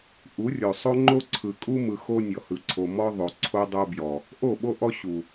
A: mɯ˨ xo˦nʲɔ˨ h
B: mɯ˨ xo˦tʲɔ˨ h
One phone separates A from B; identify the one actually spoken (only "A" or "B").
A